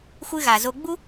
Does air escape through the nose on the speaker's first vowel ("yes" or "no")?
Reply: no